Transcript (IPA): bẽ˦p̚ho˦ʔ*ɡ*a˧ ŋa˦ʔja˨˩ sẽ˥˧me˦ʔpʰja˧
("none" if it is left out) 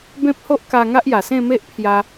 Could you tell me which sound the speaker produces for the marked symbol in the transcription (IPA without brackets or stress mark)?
k